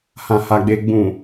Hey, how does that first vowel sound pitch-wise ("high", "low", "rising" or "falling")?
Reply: low